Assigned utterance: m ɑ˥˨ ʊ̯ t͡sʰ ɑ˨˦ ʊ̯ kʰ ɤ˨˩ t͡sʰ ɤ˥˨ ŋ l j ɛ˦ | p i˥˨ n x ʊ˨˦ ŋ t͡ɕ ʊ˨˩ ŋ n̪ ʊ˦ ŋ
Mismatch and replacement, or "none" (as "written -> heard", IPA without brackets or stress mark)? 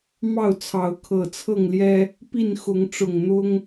t͡ɕ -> ʈ͡ʂ